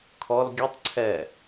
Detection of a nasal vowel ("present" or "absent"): absent